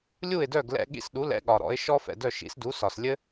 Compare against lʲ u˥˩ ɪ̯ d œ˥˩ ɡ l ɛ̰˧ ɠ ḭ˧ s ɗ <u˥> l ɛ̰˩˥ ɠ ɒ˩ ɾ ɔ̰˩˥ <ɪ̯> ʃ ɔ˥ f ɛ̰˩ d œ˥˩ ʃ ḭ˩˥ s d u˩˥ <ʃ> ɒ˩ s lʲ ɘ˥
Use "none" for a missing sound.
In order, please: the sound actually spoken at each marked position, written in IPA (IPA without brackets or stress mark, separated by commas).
u˩˥, ɪ̯, s